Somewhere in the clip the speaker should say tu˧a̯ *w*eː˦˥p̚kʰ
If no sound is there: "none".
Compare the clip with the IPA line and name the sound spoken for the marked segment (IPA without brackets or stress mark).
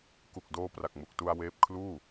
w